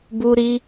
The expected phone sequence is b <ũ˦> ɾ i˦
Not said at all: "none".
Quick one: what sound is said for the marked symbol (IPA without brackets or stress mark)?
u˦